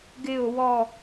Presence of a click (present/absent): absent